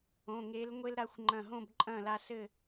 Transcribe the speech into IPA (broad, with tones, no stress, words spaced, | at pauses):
õ˩˧˩ŋe˨˦l ŋʷe˦lɾa˨˦xʷŋ͡ǃɐ̃˧˩ ɦõ˥˨bǃʼɐ̃˥˨la˦sɘ˥˨